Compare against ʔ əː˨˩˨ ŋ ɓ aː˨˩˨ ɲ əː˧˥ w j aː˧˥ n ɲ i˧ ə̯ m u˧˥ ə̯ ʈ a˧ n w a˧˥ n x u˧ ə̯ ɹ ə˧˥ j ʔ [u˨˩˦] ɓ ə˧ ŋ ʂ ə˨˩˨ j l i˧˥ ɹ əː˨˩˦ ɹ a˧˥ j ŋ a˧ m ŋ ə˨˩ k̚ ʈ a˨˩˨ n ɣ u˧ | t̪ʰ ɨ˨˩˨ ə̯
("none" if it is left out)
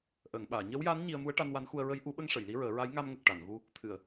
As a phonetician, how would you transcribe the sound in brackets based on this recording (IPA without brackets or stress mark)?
u˨˩˦